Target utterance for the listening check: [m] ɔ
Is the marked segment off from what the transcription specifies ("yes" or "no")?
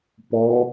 yes